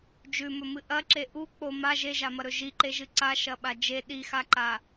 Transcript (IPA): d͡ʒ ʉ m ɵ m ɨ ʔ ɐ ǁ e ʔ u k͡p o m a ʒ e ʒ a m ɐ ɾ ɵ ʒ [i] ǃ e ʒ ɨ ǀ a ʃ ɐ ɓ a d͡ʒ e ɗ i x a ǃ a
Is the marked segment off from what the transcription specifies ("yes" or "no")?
no